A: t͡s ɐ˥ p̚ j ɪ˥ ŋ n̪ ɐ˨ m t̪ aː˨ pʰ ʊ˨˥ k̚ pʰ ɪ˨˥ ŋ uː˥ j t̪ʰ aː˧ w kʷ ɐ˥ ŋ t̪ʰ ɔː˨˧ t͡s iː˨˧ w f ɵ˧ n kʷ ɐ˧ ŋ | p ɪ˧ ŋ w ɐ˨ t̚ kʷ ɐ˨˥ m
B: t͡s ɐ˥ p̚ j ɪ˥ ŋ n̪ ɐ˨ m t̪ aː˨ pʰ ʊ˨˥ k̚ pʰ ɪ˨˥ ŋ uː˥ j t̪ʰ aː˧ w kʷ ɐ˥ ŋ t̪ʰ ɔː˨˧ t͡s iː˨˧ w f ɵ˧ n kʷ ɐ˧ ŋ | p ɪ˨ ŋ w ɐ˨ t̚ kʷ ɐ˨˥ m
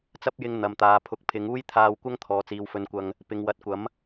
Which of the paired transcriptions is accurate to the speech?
B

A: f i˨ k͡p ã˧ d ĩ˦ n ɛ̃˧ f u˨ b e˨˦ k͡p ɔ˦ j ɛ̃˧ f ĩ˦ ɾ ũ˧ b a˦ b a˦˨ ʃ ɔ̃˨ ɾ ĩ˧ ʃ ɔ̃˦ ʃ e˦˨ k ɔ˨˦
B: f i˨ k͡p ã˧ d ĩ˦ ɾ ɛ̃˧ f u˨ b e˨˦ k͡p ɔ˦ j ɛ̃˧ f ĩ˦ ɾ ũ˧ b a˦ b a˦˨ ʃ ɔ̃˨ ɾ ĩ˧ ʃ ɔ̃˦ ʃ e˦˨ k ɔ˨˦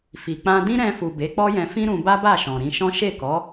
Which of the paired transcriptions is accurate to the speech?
B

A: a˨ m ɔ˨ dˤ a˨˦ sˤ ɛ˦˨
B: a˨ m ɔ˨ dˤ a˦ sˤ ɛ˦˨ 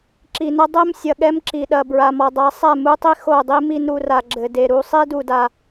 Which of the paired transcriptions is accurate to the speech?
A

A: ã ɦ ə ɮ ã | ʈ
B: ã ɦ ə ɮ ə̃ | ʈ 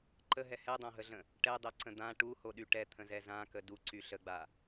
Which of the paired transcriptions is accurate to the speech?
B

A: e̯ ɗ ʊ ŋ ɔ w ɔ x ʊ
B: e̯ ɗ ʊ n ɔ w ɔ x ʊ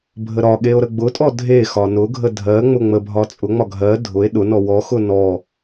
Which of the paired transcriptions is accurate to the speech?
B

